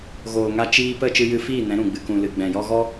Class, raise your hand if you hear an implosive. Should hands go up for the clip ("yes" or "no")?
no